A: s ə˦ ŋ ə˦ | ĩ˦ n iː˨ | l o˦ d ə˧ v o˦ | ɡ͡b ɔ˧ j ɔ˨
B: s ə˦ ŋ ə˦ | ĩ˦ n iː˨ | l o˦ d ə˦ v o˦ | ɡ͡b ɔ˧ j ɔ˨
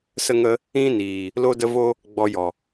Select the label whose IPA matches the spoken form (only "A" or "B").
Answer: B